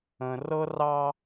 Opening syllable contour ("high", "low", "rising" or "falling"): low